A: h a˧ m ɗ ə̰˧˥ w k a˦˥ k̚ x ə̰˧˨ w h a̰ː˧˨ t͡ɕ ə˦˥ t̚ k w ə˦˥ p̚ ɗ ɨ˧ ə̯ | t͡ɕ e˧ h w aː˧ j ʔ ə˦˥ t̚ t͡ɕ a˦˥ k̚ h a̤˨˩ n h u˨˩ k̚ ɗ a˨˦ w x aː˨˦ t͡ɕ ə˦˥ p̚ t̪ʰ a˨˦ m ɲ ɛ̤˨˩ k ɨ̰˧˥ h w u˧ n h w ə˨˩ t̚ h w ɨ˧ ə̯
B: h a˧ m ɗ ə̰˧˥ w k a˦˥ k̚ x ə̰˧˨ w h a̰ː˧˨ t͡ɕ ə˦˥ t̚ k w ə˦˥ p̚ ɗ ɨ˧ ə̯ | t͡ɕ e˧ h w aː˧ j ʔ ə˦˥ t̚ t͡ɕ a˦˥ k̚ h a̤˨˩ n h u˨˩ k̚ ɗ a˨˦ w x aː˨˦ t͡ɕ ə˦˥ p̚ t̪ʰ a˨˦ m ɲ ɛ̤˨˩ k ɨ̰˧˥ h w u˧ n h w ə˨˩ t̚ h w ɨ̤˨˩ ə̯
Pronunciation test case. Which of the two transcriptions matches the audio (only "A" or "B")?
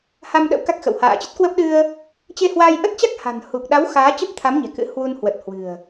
B